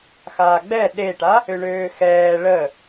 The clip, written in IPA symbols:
xaːɡ͡bɛ ɗeʈa | ʏɳøːxɛː ɭə

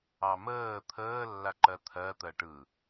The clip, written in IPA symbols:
ɑməː t̪ʰəː lːaǃɜt̪ʰɜ t̪ɜʈɯ

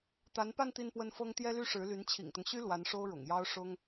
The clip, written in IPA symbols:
t̪a˧˥npa˥˧n t̪i˥˧npwə˥˩n fɤ˥ŋ t̪jɛ˥ly˥ʂɻ̩˧˥ly˧˥n t͡ɕʰḭ˨˩ŋt̪ʊ˦ŋɕy˥ lwa˧˥nʂo˥ʊ̯ ɻʊ̰˨˩ŋjɑ˥ʊ̯ ʂʊ˥ŋ

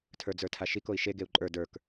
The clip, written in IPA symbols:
tʰə˞d͡zə˞tʰaʃik oi̯ʃe ɡeu̯ǃʼə˞ də˞k

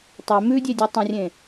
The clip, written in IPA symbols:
tˤe mʉdʲedʲe tˤɐ̃rʲẽ

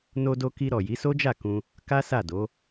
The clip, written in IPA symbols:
no˧do˧ki˧ ɾɔ˨ji˨˦so˦d͡ʒa˦˨ kũ˧ | ka˦ sa˦˨do˨˦

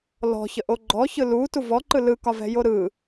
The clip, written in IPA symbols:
lɔ̤çəʔo ɡ͡ǃɔçɯ lutu vɔǃɯ lɯkɒvɛ̤jo ɾɯ

